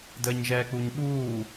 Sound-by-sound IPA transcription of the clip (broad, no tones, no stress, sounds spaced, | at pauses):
d əː ɲ ʒ ɛː k͡p u ɲ ɓ uː